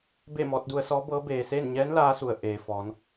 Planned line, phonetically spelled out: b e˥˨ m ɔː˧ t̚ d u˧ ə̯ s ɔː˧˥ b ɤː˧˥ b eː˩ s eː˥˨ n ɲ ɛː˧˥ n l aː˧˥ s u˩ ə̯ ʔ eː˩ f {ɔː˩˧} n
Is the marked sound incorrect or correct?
correct